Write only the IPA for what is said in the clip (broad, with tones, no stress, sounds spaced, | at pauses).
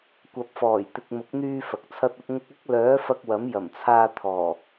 kʷ ɐ˨ p̚ f ɔː˨˩ j t̪ ɪ˨ k̚ m ʊ˨˥ k̚ n̪ yː˧ f ɐ˨ k̚ t͡sʰ ɐ˥ t̚ ɐ˥ p̚ ŋ ʊ˧ k̚ ɐ˥ k̚ l œː˨˥ f ɐ˧ k̚ w ɐ˨˥ m j ɐ˨˩ m t͡sʰ aː˧ t̪ʰ ɔː˨˩